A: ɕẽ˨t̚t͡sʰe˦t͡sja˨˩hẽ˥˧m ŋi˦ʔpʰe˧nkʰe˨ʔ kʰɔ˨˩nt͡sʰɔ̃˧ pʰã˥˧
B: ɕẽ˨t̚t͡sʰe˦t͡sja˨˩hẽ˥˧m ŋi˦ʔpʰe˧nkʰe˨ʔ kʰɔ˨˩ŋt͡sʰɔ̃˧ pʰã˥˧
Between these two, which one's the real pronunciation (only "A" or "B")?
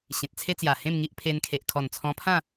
A